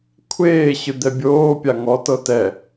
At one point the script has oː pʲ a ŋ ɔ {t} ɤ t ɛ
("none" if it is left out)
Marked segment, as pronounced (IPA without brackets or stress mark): t